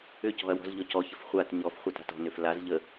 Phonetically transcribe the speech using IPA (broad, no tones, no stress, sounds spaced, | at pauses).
ʏ c ɔ̤ ɐ̯ w ɔ̤ z ʎ ɔ c ɔ ç ə f χʷ a t ɲ ɔ f χʷ a t a̤ t ɔ̤ n ʏ f l a z ʎ ə